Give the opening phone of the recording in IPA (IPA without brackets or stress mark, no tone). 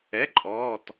ɛ